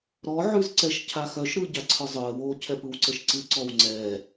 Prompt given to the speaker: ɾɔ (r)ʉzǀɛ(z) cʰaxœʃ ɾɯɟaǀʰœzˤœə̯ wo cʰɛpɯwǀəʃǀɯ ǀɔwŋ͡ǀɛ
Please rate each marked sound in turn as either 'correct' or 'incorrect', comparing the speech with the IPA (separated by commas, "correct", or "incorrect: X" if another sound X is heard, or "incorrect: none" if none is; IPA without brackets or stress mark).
incorrect: ʕ, incorrect: ʃ